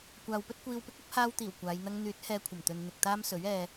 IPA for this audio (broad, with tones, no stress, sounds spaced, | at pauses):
kʷ aː˨ w p ɵ˥ t̚ kʷ iː˧ w p ɪ˥ k̚ ɐ˥ p̚ h aː˧ w t̪ iː˨˩ w kʷ aː˨˧ j n̪ ɐ˥ ŋ n̪ yː˨˥ t̚ h ɛː˧ kʷʰ ɐ˨˩ m t̪ ɵ˨ n n̪ ɪ˨ k̚ t̪ aː˥ m s ɵ˨˥ ɥ ɛː˧